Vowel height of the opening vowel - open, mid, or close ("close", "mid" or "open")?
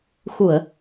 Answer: close